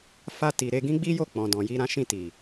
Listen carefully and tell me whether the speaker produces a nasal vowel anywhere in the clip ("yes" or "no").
yes